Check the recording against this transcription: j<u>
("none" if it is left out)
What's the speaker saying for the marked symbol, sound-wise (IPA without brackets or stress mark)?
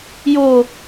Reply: o